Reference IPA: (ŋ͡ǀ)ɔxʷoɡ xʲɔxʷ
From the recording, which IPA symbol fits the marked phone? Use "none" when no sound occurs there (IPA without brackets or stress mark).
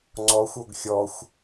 ŋ͡ǀ